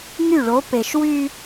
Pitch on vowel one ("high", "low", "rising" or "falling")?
falling